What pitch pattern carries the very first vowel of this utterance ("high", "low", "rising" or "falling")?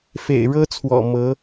low